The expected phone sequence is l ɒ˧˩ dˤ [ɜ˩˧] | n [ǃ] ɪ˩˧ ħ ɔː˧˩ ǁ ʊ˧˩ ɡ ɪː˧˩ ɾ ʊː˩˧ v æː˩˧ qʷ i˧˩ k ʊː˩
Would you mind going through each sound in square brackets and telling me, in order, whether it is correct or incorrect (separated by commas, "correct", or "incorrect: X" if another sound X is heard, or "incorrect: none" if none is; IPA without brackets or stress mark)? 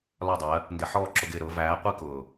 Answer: correct, incorrect: d